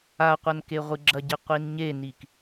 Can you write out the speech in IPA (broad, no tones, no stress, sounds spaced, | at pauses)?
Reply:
a qʷ ɐ n k e ʁʷ ɨ ɡ͡ǁ ɐ ɟ e qʷ i n ɲ e n i k